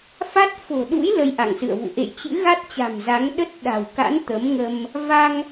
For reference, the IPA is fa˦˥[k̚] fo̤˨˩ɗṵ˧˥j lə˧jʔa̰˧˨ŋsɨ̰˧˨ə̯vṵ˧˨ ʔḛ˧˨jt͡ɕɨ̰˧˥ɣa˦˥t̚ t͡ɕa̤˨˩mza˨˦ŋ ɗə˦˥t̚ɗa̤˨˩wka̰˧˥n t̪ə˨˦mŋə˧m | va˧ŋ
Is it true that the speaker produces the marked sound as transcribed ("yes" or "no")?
no